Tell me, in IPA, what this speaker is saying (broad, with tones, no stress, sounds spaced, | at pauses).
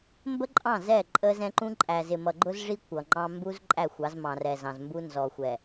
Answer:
m b ə˦ ǃʼ ɑ̃˦˨ z ɛ˦˨ ǃʼ ə˦ z ɛ̃˦ ǃ ũ˦ ǃʼ æ˨ z ɪ˨ m ʌ˨ ɡ͡ǃ ʊ˦ z ʐ i˦ kʷ ʌ˨ ŋ͡ǃ ɑ̃˦ m b u˦ z ǃʼ æ˦˨ xʷ ɑ˨˦ z m ɑ̃˨ r ɛ˨ z ɑ̃˨ z m b u˦ n z ɔ˨ xʷ ɛ˨